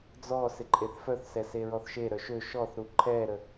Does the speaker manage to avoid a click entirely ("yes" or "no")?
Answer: no